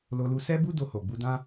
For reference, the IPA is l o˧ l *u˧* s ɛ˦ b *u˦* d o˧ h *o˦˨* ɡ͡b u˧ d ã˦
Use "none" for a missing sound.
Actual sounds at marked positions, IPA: u˧, u˦, o˨

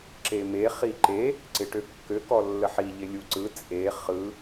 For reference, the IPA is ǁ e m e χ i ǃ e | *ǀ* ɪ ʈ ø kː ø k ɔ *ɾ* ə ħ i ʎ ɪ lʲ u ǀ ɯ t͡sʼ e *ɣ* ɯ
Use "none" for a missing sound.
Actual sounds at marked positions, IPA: ǀ, lː, χ

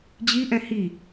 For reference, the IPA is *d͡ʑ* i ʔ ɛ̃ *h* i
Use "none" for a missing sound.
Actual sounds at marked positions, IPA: d͡ʑ, h

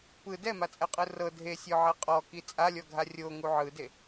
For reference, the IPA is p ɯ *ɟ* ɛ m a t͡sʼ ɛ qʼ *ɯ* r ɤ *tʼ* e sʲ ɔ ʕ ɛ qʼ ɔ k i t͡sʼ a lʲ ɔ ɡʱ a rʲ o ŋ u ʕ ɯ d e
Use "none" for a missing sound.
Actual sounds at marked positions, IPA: d, ɯ, dʱ

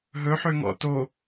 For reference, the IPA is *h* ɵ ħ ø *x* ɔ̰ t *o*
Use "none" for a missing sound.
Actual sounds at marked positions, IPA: ɦ, ŋ, o

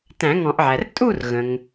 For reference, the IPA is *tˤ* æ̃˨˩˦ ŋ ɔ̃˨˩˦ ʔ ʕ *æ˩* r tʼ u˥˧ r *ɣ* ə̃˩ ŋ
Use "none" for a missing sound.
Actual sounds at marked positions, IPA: t, æ˩, ɣ

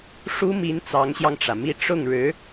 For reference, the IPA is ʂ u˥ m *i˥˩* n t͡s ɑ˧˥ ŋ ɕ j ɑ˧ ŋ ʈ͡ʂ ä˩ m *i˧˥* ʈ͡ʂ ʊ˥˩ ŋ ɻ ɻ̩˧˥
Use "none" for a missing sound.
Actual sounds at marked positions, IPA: i˧˥, i˥˧

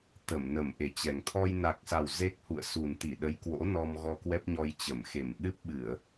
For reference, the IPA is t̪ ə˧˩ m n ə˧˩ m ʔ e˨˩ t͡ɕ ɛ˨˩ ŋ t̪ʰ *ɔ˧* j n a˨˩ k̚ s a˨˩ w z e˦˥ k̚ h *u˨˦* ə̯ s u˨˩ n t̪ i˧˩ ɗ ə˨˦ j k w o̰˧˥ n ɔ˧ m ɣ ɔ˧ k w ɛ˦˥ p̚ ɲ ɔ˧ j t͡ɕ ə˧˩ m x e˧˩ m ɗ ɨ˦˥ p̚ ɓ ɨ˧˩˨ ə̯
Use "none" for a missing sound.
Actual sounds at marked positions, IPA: ɔ˧, ṵ˧˨

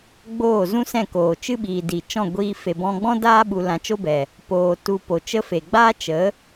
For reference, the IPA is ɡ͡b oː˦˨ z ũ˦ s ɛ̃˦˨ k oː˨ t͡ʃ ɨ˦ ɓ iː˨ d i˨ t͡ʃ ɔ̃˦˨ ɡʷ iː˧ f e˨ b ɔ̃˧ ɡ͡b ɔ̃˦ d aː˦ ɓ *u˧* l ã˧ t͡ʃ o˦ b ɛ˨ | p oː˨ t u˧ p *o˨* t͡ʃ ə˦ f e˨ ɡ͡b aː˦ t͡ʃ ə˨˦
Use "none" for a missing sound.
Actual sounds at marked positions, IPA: u˧, o˨

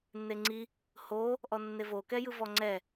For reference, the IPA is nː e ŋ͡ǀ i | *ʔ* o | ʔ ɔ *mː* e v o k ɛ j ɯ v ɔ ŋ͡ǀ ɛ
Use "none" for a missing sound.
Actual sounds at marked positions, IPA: h, nː

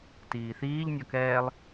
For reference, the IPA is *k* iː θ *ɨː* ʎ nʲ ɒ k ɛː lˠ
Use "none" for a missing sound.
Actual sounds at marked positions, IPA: t, iː

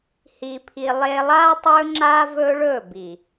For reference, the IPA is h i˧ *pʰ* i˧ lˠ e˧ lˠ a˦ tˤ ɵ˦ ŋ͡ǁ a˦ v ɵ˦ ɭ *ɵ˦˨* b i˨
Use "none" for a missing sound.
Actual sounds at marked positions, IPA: pʰ, ɵ˦˨

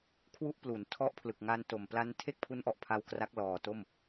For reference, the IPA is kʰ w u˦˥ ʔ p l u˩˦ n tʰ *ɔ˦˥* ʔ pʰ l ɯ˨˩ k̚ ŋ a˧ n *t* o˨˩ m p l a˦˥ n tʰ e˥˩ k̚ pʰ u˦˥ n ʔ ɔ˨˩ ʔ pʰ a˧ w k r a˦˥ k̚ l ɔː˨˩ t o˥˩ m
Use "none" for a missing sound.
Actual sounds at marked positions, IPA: ɔ˦˥, t

